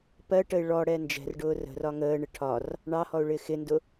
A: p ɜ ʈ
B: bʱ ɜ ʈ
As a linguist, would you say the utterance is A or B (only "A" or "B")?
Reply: A